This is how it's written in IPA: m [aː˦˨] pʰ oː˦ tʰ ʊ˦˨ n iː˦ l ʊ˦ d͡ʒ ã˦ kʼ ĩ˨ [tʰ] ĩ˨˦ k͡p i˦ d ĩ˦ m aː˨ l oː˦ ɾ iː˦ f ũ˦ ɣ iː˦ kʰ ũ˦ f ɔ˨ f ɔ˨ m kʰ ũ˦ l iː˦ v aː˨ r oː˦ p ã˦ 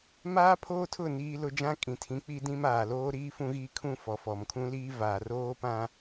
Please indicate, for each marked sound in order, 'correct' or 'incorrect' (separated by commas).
incorrect, correct